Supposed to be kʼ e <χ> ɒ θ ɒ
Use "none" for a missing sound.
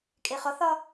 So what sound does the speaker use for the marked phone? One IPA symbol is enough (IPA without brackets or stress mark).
χ